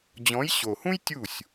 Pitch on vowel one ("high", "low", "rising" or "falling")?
rising